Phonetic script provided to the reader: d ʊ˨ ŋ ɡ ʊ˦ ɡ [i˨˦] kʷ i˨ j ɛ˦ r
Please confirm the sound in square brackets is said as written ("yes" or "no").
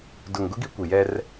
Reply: no